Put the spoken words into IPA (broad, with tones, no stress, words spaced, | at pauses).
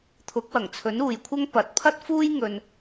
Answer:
t̪ʰʊ˨˥k̚wɐ˨˩ŋt͡sʰɵ˨˥n uː˨jkʷʰɐ˥ŋ pɐ˨˥t̚pʰɐ˥t̚fuː˥j ŋɵ˧n